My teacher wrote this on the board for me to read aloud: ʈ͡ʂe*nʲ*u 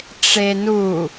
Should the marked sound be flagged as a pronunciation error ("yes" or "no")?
yes